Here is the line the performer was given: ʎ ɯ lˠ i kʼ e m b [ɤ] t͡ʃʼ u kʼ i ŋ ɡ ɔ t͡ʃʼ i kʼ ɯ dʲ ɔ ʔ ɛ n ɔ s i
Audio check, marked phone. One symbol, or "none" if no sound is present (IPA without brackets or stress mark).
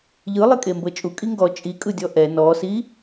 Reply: ɤ